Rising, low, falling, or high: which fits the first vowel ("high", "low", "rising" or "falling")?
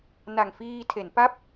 low